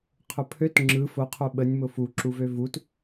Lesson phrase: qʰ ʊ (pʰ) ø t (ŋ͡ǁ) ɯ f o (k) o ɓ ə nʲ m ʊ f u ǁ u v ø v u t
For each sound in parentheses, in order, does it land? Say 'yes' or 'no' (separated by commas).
yes, yes, no